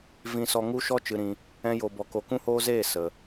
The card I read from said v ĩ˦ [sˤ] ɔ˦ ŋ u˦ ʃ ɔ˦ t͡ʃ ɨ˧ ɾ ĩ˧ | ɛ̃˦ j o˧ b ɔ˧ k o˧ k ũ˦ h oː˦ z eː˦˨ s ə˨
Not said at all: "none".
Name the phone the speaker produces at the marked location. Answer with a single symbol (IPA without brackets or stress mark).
s